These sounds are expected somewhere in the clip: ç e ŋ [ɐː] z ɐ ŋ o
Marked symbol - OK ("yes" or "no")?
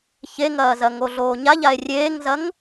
yes